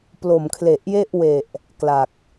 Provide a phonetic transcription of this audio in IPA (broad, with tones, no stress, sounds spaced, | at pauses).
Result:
p l o˨˩ m kʰ l e˨˩ ʔ j e˥˩ ʔ w e˨˩ ʔ | k l a˨˩ k̚